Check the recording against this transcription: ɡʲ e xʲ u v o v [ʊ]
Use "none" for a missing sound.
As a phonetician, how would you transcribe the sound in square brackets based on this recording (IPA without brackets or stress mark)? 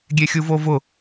ʊ